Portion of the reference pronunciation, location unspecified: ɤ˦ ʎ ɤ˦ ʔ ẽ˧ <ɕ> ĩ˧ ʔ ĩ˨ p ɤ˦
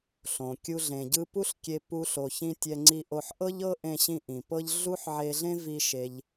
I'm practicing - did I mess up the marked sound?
no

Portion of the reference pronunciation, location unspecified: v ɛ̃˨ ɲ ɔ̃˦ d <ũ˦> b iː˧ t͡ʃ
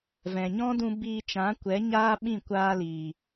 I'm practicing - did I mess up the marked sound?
yes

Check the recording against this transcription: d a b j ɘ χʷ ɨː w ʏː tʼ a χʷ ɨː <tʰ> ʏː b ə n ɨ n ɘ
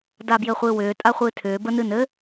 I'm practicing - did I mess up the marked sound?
no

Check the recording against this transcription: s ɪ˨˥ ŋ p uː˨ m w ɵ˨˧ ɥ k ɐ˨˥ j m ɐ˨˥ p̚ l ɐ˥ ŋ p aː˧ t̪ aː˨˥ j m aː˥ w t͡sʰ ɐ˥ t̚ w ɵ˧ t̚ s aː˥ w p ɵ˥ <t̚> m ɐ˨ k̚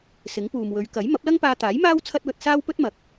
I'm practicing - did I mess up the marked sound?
no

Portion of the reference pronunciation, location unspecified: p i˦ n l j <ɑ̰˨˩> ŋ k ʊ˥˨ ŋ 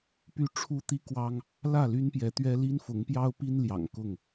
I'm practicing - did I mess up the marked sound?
no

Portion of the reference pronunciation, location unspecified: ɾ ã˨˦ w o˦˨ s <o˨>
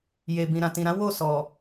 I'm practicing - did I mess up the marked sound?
yes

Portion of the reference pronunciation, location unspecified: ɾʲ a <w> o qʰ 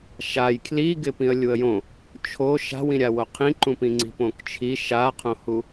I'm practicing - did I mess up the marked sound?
no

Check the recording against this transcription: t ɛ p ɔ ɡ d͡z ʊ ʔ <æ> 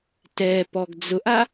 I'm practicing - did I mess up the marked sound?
yes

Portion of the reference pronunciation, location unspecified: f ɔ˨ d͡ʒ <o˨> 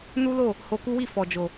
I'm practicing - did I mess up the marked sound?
no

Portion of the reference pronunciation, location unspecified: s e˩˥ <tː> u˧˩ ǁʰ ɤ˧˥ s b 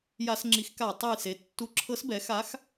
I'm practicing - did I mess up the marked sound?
no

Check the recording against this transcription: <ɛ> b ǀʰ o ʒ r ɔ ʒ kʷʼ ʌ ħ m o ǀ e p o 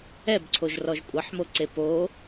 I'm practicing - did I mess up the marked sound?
no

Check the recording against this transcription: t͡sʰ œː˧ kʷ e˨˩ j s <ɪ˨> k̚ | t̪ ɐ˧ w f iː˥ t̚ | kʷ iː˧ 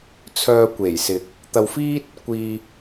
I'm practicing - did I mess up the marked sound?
no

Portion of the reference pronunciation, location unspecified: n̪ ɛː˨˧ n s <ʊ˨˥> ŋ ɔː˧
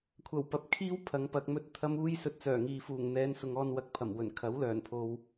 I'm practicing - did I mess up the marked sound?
yes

